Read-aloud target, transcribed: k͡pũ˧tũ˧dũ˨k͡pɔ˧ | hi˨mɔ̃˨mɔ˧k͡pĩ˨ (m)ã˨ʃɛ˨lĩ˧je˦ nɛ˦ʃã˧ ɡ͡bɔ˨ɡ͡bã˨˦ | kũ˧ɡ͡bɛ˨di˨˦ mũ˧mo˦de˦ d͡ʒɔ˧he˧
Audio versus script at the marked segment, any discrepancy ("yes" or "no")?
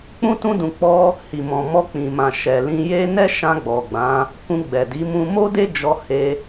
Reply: no